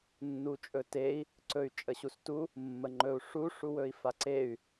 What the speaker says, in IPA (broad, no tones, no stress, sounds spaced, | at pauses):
nː u t͡ʃʼ ɵ t e i̯ | ǀ ɵ y̯ t͡ʃʼ ə ɕ u s t u | mː ə ŋ͡ǃ ɵ u̯ ʂ u ʂ u w ɵ i̯ f a ǀ e y̯